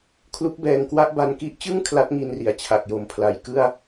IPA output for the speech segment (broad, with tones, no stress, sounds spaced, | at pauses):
kʰ l u˦˥ k̚ b ɛː˧ ŋ k w a˥˩ ʔ b a˧ n k i˦˥ ʔ t͡ɕ ɯ˥˩ ŋ kʰ l a˦˥ t̚ ŋ i˧ n r i˩˦ a̯ t͡ɕʰ a˨˩ k̚ j o˨˩ m pʰ l a˨˩ j k ɯ˥˩ a̯